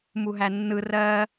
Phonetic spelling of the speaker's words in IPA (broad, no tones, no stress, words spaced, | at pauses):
muɦænːɯ rɜ